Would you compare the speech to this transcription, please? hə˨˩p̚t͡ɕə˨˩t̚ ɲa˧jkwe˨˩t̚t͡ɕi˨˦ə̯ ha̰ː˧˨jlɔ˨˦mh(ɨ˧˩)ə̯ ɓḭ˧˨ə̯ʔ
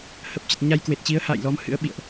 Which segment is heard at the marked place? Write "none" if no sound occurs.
ɨ̰˧˥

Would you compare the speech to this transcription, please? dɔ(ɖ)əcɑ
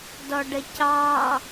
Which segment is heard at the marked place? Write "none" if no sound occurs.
ɖ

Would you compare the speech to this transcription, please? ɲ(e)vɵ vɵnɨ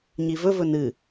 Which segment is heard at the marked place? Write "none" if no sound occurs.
i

